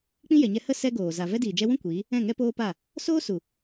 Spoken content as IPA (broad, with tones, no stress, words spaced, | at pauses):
k͡pĩ˦jɛ˨ɲɛ˧ hə˦ sɛ˦ɡoː˨ za˨ vɛ˦diː˨ d͡ʒɛ˧wũ˦ kʷiː˨˦ | ɛ̃˦˨ŋɛ˦poː˦ pa˦˨ | soː˦su˨